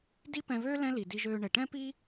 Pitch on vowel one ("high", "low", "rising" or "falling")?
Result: high